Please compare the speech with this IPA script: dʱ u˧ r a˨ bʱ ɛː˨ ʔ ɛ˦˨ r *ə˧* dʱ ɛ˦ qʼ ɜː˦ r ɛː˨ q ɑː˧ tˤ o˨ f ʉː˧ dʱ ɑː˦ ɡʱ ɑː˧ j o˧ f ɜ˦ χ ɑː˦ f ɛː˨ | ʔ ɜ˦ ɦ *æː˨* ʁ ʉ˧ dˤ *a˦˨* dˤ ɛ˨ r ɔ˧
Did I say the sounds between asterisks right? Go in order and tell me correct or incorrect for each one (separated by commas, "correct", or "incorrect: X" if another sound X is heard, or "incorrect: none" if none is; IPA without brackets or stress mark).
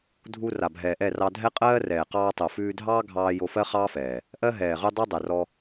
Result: incorrect: ɑ˧, incorrect: ɛː˨, incorrect: a˦